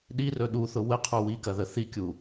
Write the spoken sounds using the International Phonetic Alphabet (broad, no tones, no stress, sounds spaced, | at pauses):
ɗ i r ɵ ɗ u θ ʊ w ə qʰ u w i k ɐ ð ə θ i kʲ u